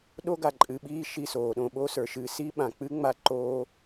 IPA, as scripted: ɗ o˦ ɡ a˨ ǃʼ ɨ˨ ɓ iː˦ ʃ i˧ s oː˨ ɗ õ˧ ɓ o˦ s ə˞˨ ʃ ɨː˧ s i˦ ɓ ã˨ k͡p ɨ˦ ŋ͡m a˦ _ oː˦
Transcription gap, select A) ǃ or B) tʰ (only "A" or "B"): A